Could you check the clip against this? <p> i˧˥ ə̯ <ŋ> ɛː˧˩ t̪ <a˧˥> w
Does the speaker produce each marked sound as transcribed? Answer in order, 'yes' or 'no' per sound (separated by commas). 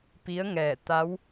yes, yes, yes